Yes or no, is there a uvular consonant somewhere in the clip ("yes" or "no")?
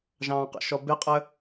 yes